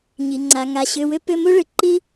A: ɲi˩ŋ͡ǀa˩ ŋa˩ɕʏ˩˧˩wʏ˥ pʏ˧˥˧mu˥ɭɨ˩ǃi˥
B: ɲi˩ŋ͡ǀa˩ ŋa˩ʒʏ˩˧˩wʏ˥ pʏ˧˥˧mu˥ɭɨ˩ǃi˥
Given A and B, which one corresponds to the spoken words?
A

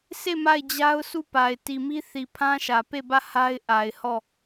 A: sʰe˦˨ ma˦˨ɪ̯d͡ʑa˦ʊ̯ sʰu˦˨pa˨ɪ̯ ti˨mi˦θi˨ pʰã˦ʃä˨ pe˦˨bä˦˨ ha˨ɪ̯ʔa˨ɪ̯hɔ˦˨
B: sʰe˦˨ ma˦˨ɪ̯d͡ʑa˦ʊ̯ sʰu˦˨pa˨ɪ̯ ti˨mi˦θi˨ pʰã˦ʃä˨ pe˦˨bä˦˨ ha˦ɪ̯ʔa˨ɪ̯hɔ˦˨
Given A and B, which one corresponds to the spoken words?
B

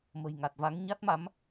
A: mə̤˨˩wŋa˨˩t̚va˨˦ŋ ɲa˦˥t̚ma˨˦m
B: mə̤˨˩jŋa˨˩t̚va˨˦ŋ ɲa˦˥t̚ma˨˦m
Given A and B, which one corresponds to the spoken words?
B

